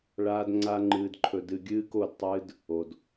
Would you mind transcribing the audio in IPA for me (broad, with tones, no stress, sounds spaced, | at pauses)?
ɭ aː˦ d ŋ͡ǀ a˦ ŋ͡ǃ ɨː˧ d ǃʰ ɵ˧ d ɨ˧ ɡʲ ɨː˦ k o˦˨ d tˤ ɨː˦ d | o˧ d